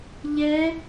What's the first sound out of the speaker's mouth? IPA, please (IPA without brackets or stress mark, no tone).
ʎ